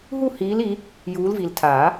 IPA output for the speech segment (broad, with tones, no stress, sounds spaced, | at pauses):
ɦ u˦˨ h iː˨˦ l i˨˦ | j uː˨˦ l v i˨ l tʰ aː˨˩˦